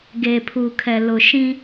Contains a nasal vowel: yes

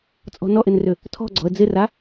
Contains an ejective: yes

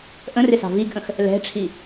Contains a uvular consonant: no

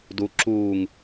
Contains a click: yes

